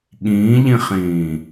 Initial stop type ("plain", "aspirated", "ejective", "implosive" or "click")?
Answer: implosive